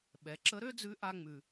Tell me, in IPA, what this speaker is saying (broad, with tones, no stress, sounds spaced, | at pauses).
ɓ ɛ˩˧ ǁ ə˧˥ ɾ ø˥ d͡z ʉ˧˥ ʔ a˧ ŋ͡m ʉ˩